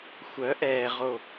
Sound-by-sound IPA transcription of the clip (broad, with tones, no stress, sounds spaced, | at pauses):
xʷ œ˨˦ ʔ ɛː˨ ʁ o˨